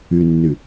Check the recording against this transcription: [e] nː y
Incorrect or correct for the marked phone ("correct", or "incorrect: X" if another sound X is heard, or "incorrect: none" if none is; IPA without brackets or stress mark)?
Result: incorrect: y